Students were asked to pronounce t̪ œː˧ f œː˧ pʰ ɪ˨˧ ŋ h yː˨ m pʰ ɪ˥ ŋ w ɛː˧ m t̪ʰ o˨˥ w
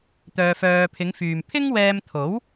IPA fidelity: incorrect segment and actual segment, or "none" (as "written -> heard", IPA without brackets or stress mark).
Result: h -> f